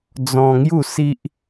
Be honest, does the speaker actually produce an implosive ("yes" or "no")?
no